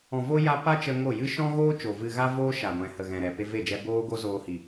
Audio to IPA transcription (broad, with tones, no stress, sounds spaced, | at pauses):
ɔ̃˨ v o˧ j a˦ p a˦ t͡ʃ ə˧ ŋ o˦˨ j ɨ˦ ʃ ɔ̃˦ ɣ oː˦ t͡ʃ o˨ v ɨ˧ ɣ a˦ v oː˦ ʃ a˨ ɡʷ ɛ̃˨ h ə˨ ɣ ɛ̃˨ ɾ ɛ˨ p e˧ v e˦˨ d͡ʒ ɛ˧ b oː˦ ɡ o˦ z oː˧ h i˨